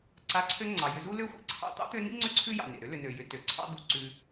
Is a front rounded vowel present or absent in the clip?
present